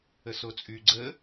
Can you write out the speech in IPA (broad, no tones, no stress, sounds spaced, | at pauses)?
ə s o t͡sʼ y ɡ͡ǀ ə